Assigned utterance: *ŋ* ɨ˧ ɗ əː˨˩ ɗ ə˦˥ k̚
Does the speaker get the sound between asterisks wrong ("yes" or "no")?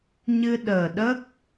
yes